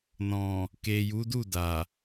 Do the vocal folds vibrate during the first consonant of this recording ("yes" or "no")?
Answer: yes